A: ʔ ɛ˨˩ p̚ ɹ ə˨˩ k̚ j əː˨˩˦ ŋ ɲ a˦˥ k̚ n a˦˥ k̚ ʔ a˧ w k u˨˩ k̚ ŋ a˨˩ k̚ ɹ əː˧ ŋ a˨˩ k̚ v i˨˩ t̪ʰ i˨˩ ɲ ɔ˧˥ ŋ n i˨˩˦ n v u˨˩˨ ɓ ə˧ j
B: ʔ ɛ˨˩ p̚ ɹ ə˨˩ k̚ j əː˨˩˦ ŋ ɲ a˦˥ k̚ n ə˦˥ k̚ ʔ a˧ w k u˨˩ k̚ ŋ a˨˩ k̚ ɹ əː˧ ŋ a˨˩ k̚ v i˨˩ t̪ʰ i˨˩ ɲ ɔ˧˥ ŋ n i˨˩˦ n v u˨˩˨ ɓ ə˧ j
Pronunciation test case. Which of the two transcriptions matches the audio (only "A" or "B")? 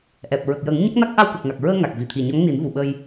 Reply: A